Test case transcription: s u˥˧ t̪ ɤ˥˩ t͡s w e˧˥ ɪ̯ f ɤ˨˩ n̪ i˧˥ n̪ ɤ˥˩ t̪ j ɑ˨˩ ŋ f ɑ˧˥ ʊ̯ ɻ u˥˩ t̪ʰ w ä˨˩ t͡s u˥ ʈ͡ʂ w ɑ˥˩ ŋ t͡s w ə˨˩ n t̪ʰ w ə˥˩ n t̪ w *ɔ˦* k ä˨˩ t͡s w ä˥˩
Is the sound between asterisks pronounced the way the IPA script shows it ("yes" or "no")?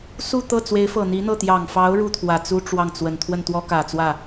no